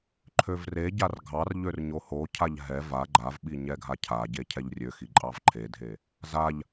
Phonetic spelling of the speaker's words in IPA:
ǃʰ ø v r e ɟ a r ɡʱ ɑ r ʎ ø r ɲ o h o cʰ a ʎ ɦ ɛ v a ɡ͡ǃ a v ɓ i ɲ ɛ ɡʱ a cʰ a ɟ e cʰ ɛ ʎ rʲ ø x i ǃʼ ɑ v ǃʰ e dʱ e | z a ʎ

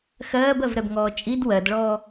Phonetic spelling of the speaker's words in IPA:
x ɜː b ɜ v ɾ ɛ b ŋ ɔː t͡ʃʼ i d w ɜ d ɭ ɔː

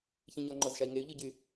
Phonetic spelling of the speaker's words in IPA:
ç ĩ ɲ ɔ ŋ͡ǃ ɔ z ʃ a i̯ ŋ e y̯ ʎ y ɟ y

